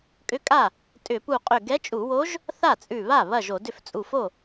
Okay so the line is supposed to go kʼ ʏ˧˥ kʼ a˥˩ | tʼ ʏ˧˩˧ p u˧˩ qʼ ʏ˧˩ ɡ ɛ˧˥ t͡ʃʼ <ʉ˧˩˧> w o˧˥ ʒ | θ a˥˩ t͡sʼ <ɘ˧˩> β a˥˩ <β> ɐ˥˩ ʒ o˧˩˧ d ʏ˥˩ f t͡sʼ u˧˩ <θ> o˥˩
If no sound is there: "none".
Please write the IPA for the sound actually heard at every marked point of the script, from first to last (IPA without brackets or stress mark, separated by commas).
u˧˩˧, ʉ˧˩, β, f